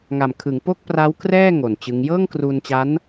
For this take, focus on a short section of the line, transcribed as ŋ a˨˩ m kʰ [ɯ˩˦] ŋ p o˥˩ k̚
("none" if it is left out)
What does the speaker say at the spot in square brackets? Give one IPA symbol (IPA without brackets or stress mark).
ɯ˩˦